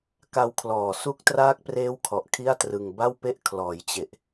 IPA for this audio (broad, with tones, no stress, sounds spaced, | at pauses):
k a˧ w kʰ l ɔː˨˩ s u˦˥ k̚ t r aː˦˥ k̚ p r eː˦˥ w kʰ ɔ˨˩ ʔ kʰ i˥˩ a̯ t r ɯ˧ ŋ b a˥˩ w p e˥˩ ʔ kʰ l ɔː˩˦ j t͡ɕ e˨˩ ʔ